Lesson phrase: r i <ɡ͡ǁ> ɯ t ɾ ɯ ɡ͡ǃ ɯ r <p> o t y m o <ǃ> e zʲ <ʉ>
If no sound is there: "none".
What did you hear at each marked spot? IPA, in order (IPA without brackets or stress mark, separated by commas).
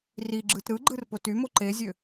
ɡ͡ǁ, p, ǃ, ø